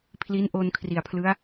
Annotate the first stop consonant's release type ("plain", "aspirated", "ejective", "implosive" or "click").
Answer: aspirated